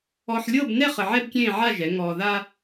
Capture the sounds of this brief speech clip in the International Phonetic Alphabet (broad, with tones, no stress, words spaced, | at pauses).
ɔ˧ħlʲɤ˥˧bnɛ˥˧χ ə˧ʕɛ˥bkʲẽː˥˧ʕa˥˧ ʒɛ˩˧ ŋɔː˧ða˥